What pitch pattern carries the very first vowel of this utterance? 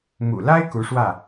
low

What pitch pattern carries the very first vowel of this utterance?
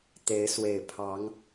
rising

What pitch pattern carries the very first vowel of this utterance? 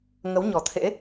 rising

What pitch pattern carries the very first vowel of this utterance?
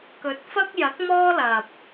rising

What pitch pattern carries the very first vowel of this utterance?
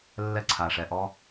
high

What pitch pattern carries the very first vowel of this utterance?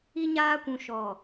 high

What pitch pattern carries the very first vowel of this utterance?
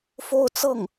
falling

